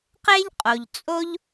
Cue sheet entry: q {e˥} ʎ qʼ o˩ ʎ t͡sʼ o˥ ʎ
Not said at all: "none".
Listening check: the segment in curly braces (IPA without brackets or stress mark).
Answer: e˥